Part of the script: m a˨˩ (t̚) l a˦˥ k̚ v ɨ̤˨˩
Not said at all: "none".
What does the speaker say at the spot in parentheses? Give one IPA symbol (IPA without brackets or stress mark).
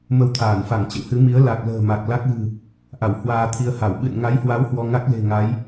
k̚